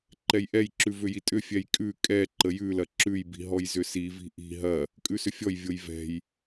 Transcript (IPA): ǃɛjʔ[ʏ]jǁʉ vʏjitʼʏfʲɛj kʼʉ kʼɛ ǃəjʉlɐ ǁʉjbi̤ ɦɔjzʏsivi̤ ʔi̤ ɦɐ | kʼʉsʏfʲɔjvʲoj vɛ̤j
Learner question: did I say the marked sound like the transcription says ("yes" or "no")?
no